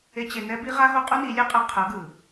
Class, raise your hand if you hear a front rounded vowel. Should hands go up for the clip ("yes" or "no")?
no